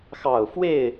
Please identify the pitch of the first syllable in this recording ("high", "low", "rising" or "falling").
falling